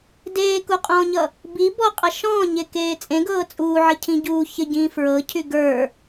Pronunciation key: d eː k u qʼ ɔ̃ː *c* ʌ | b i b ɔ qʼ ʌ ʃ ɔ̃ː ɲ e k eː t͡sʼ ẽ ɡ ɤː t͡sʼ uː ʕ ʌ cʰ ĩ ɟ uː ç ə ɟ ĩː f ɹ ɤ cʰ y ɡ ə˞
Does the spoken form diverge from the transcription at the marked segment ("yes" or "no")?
yes